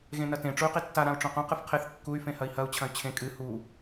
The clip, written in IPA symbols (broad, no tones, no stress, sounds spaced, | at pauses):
ɣ ẽ n ɐ t ẽ ʈ͡ʂ u y̯ q i tː a ɾ ã u̯ ʈ͡ʂ õ q õ q ɨ f qʰ e θ kː u y̯ f ẽ h ɐ i̯ h ɐ u̯ t͡ɕʰ ɐ̃ y̯ t͡ɕʰ ẽ kʼ ɨ h u